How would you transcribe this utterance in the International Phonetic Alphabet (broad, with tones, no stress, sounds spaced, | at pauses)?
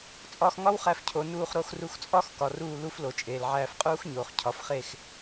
t͡sʼ ɒː˧ x ŋ ɒ˦ w χ æ˧ f cʰ o˨ n uː˧ χ ɾ o˧ x r u˧ x t͡sʼ ɒ˦ x k ɒ˨ r uː˧ l u˦ f l o˨ t͡ʃʼ eː˨ l ʕ æː˧ f qʼ uː˦ x ɲ oː˨ χ cʰ ɒ˨˦ f χ e˦˨ x